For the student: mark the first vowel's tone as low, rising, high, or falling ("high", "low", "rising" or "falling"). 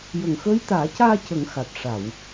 low